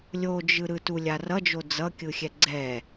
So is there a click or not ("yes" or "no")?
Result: yes